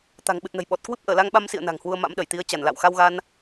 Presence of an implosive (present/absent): present